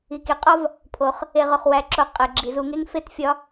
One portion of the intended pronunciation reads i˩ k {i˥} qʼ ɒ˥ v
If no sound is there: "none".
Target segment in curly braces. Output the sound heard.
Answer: i˩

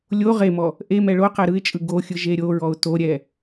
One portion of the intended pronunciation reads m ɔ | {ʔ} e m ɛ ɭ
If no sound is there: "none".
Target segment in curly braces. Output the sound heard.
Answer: ʔ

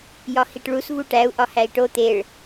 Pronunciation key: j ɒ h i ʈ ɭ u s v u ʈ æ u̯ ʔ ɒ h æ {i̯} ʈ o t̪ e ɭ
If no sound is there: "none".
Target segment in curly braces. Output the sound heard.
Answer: i̯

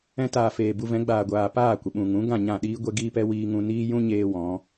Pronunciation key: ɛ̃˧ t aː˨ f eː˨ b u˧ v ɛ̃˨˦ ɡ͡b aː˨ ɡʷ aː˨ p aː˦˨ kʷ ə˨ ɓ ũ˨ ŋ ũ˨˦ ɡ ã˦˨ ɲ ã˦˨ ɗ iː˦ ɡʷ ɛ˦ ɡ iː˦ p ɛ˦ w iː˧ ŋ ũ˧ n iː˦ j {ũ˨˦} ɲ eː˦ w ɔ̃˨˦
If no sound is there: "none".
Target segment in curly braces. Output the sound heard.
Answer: ũ˦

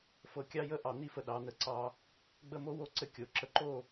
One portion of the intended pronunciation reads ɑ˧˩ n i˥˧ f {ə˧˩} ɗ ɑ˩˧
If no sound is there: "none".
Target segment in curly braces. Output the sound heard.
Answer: ə˧˩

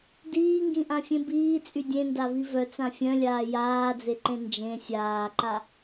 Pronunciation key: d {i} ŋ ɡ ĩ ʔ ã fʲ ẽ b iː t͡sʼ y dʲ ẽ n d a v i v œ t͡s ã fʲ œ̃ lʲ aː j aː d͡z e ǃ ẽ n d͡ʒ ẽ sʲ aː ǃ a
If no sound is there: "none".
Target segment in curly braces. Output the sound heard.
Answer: iː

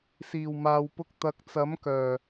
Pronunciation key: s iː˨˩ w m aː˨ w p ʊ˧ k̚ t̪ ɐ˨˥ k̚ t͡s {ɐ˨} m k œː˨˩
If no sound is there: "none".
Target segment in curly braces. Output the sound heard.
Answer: ɐ˨˥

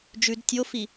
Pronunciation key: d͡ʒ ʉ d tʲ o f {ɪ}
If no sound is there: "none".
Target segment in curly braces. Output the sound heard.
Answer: i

